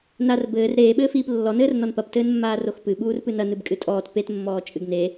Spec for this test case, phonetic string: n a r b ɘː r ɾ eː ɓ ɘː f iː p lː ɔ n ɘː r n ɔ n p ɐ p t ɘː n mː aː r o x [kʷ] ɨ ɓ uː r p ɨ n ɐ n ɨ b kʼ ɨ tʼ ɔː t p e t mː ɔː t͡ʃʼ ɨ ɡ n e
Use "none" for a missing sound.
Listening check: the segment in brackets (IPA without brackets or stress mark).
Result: p